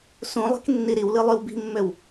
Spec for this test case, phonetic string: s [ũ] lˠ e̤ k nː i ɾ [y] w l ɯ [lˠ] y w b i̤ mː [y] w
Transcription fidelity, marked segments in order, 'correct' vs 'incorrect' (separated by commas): correct, incorrect, correct, incorrect